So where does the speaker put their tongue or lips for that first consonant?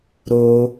tongue tip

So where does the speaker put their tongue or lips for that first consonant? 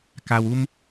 velum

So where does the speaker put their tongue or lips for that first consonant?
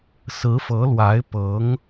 tongue tip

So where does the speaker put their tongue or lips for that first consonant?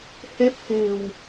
throat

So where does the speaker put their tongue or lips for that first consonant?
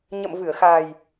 palate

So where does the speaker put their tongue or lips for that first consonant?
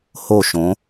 throat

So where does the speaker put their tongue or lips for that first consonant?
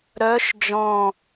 tongue tip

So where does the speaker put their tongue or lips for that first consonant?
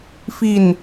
lips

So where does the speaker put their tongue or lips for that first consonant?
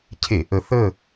palate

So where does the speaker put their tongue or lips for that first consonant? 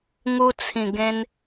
velum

